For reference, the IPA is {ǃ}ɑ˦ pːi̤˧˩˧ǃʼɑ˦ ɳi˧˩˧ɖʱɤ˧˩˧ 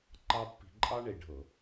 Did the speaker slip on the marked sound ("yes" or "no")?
no